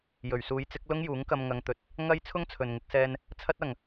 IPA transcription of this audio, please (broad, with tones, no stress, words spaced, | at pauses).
jɵ˨˩ɥsuː˨˥jt͡sɪ˨˥k̚ lʊ˥ŋjuː˨˥ŋkɐ˧m ŋɐ˧ŋt̪ɵ˧t̚ | ŋɐ˥j t͡sʰʊ˥ŋt͡sʰɵ˨nŋɪ˧k̚sɛː˧n | t͡sʰɐ˥t̚ɐ˨ŋ